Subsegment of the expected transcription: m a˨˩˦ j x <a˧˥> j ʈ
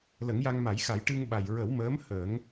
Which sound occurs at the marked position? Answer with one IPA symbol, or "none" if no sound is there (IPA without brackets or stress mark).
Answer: a˨˩˦